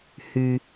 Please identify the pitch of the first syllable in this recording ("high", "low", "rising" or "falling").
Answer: low